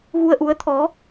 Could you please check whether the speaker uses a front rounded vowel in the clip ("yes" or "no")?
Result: no